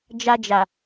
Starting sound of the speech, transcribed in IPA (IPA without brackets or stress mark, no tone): d͡ʒ